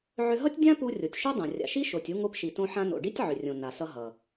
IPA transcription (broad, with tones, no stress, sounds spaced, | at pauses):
ʕ ʏ˧ ɦ ʌ˥ tʲ dʲ ã˥ p u˧ rʲ o˩ tʲ ʃ o˥ dˤ õ˩ rʲ a̰˩ ʃ i˥ ʃ o˩ tʲ u˧ ŋ o˧ p ʃ i˩ t õ˧ ħ ã˧ n o̰˩ ɖ i˥ tʲ ʕ ʏ˩ rʲ õ˩ n a˩ s ʌ˧ ɦ ʌ˩